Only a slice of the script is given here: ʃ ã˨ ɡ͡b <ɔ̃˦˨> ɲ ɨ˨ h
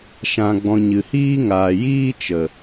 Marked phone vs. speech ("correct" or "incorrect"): incorrect